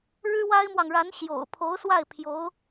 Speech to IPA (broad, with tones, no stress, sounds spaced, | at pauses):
ɻ ɻ̩˥ w a˥ ɪ̯ m w ɑ˨ ŋ ɻ a˧˥ n ɕ j o̰˨˩ ʊ̯ pʰ o˧˥ ʊ̯ s w a˥˩ ɪ̯ pʰ j o˧˥ ʊ̯